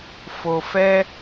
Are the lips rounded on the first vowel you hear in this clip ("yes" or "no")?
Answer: yes